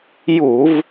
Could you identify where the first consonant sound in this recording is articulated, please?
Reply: palatal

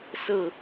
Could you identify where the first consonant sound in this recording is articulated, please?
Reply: alveolar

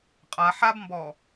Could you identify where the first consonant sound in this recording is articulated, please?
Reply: uvular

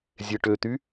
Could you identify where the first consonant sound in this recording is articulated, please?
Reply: alveolar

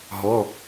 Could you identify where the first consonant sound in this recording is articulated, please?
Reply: glottal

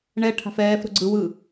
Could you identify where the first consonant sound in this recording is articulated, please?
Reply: retroflex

